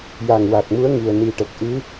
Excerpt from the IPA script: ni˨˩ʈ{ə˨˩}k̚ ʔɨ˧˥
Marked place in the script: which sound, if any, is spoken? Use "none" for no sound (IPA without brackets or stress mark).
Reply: ə˨˩